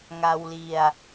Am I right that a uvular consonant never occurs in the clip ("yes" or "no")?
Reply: yes